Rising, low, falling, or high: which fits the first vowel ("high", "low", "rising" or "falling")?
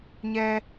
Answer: high